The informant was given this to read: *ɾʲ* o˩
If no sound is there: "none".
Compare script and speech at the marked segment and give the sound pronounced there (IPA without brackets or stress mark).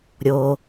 ɾʲ